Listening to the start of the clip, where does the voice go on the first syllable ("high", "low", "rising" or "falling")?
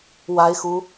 high